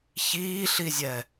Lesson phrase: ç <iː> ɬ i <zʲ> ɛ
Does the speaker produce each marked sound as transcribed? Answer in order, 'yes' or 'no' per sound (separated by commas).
yes, yes